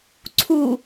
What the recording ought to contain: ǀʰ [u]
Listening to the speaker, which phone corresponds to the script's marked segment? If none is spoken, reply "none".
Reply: u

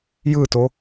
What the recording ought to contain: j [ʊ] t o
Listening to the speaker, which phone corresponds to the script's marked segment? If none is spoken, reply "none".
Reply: ɯ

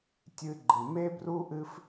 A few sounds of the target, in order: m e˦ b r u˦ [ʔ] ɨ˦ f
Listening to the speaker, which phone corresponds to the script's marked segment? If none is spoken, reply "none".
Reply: ʔ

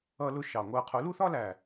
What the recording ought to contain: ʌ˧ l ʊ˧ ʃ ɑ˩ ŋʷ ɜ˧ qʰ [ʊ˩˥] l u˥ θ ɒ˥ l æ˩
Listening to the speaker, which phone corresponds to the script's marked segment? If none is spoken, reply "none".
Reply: ʊ˩˥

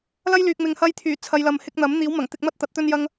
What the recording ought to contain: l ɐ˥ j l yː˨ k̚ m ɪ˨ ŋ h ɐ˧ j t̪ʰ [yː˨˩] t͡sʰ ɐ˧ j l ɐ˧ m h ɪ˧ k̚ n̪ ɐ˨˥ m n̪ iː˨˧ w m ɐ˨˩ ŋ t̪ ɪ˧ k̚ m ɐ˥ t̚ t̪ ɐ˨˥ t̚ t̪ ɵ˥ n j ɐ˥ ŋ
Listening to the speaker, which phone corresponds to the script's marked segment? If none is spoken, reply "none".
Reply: yː˨˩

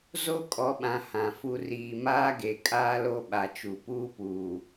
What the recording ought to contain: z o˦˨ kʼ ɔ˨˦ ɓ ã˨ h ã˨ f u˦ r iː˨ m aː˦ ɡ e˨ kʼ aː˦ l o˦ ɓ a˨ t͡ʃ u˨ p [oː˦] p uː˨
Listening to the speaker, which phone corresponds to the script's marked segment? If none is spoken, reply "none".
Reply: uː˦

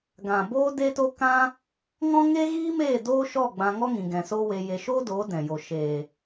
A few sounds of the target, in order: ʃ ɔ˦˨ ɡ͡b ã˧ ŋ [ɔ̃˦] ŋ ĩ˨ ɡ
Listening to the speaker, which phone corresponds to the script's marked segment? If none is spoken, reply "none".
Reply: ɔ˦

